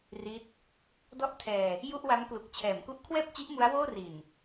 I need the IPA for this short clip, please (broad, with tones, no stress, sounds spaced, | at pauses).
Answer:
r i˦˥ t̚ | d ɔ˥˩ ʔ tʰ ɛː˧ | j u˥˩ ʔ w a˦˥ m k l u˨˩ k̚ t͡ɕʰ ɛː˩˦ m k u˦˥ ʔ kʰ w ɛː˥˩ p̚ t͡ɕ i˦˥ ʔ m u˦˥ a̯ w oː˥˩ r i˨˩ n